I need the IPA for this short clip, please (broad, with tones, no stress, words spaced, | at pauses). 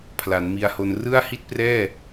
pʰla˩˦nmi˧a̯ho˧n rɯ˥˩a̯hi˥˩t̚prɛː˥˩